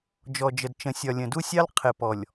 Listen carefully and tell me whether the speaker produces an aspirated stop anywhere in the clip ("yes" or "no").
yes